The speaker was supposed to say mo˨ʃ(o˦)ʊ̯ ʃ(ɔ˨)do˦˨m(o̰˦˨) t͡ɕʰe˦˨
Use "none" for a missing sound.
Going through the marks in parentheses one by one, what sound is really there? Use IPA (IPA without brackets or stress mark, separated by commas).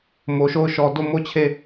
o˦˨, ɔ˨, o˦